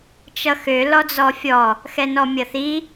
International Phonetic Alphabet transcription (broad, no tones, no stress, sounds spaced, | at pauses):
t͡ʃ ʌ x ø l ɔ d͡z ɔ fʲ ɔ | x ɛ n ɔ mʲ ʌ θ i